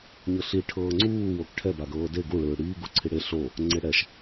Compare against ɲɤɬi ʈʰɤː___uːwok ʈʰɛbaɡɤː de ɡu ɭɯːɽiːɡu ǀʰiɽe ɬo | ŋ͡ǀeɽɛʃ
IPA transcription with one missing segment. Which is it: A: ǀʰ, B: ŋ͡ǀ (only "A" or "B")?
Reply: B